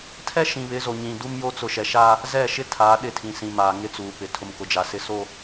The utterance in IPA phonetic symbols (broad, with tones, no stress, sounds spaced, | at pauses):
tʰ ɛ˦ ʃ ĩ˨ β ɪ˨˦ z o˨ ɲ ĩ˨ d u˦ m j o˦ t͡s ʊ˨ ʃ ɛ˨ ʃ aː˦ | z ɛ˦˨ ʃ ɪ˦ tʰ aː˨˦ ɗ ɪ˦˨ tʰ ĩ˨ s ĩ˨ m aː˨ ŋ ɪ˦ t͡s uː˨ p ɪ˨ tʰ ʊ˨ m k ʊ˨ d͡ʒ a˨ s ɪ˦ s o˦